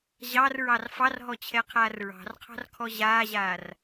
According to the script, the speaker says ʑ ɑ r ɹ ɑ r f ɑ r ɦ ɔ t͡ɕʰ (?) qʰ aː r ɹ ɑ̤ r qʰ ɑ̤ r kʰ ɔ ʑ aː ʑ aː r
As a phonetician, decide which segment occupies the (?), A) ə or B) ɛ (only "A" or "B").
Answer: B